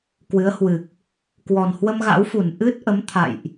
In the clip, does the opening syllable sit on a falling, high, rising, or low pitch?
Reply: rising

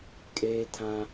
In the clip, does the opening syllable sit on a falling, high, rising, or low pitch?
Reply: high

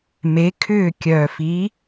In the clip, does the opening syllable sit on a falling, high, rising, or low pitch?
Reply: rising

